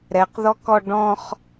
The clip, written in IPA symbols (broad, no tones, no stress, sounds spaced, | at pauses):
ɾ ɛ q ð ɔ k ɔ ɖ ɔ̃ χ